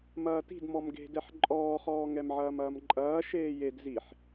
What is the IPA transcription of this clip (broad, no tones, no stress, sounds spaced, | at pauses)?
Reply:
m ɐː t i̤ d m ɔ m ɡ e̤ d ɛ ħ ǃʼ ɔː χ ɔː ŋ ɛ m ʕ ɐː m ɐː m ǃʼ ɐː ʃ eː j e d z i ħ